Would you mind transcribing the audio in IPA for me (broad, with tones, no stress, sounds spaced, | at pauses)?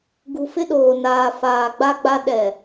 ɡ u˨ f ɪ˦ ɗ oː˨ n aː˨ f aː˨ ɡ͡b a˦ ɡ͡b a˦ ɗ ɛ˨